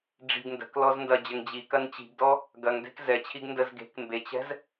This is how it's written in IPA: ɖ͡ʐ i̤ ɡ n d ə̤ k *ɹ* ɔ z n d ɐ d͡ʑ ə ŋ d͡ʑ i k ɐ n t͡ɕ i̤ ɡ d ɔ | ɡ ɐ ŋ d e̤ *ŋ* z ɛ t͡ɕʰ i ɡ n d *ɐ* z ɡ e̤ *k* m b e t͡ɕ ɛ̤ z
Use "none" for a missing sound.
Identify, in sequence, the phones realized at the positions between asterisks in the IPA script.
l, k, ə, k

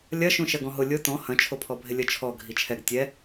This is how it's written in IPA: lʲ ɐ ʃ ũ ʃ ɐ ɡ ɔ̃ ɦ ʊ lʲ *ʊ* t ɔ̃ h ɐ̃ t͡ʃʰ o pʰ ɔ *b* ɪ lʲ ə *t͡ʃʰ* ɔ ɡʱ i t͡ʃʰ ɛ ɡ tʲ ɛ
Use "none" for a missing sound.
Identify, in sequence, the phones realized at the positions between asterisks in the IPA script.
ʊ, bʱ, t͡ʃʰ

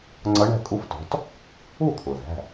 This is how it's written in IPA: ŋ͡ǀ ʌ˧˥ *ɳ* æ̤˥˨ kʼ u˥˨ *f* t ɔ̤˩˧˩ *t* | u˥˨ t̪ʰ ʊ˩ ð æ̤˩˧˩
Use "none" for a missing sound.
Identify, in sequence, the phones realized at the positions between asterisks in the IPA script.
ɳ, f, t

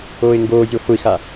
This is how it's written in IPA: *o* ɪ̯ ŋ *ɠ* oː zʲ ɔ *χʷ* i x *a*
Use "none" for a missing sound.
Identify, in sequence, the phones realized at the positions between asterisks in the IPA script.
oː, ɡ, χʷ, a

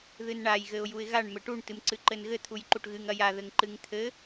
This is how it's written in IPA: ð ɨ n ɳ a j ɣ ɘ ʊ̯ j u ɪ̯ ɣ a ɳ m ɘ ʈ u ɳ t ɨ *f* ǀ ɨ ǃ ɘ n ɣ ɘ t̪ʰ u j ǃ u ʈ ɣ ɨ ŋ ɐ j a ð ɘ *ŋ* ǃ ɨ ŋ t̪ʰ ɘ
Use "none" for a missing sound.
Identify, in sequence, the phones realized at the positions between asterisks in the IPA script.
m, ŋ

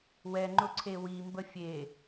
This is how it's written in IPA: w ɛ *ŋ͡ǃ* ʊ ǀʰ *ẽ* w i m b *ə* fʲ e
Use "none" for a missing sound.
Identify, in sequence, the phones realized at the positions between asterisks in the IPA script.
ŋ͡ǃ, e, ə

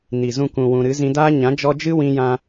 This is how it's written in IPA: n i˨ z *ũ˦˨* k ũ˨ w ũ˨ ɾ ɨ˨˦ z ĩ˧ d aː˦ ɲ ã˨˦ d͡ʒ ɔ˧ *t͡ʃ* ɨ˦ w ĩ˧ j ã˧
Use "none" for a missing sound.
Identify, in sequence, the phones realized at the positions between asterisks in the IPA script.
ũ˧, d͡ʒ

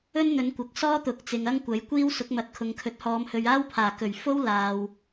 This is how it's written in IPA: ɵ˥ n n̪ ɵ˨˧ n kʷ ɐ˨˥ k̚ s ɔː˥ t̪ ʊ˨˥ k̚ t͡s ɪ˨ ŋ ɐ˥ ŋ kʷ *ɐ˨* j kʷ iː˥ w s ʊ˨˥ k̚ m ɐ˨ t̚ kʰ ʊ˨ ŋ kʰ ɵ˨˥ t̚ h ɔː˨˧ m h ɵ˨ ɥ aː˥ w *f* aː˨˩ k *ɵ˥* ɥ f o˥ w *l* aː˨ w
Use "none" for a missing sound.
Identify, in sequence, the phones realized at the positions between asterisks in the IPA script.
ɐ˨˥, pʰ, ɵ˨˩, l

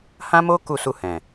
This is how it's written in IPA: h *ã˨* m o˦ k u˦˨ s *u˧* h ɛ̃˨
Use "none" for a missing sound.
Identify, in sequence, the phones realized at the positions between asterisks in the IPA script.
ã˦, u˧

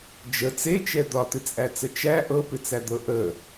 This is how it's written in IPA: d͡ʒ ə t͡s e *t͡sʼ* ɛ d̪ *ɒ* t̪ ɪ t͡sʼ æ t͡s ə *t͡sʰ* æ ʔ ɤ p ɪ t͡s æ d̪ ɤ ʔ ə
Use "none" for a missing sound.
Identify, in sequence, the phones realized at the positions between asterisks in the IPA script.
t͡ʃ, ɒ, t͡ʃ

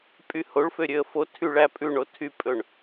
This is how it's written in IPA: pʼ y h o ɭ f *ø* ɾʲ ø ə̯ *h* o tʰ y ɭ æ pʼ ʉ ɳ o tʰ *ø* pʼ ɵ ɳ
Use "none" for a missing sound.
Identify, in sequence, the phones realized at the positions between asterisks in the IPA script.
ø, f, y

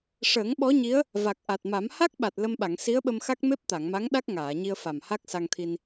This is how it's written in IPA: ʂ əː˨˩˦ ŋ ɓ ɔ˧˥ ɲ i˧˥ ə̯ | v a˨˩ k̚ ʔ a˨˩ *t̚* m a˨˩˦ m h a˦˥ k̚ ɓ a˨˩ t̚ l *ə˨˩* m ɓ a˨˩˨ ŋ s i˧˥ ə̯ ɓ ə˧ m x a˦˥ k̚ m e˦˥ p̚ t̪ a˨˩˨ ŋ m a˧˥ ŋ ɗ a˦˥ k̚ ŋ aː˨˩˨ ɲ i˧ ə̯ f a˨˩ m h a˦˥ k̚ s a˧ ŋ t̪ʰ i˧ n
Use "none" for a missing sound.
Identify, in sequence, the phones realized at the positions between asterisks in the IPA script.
t̚, ə˧

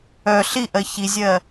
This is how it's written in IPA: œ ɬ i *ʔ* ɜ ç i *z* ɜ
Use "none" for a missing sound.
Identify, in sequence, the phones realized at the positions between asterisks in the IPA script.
ʔ, zʲ

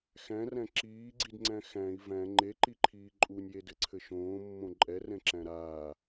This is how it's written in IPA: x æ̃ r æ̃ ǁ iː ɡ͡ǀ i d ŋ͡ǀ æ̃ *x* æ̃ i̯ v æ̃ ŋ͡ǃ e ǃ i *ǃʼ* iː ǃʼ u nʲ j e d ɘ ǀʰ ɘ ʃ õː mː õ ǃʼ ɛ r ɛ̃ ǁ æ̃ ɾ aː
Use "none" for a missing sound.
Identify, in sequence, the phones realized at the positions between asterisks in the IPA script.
x, ǃʰ

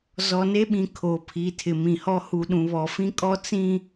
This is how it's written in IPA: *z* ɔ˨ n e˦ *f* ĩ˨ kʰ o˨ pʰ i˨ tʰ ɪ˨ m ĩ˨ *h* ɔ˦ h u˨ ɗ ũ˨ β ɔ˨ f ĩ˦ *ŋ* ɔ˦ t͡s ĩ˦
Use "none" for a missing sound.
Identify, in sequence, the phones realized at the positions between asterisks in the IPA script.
z, ɓ, h, kʼ

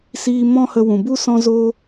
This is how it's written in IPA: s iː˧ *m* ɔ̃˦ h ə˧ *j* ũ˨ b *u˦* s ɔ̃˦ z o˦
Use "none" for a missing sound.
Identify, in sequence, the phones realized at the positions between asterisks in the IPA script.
m, w, u˦

